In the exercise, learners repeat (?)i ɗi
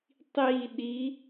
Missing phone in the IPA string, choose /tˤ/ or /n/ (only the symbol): tˤ